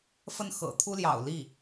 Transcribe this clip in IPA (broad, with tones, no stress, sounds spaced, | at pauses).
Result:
f ə˥˩ n x ɤ̰˨˩ t̪ʰ u˥ l j ɑ̰˨˩ ʊ̯ l i˥˩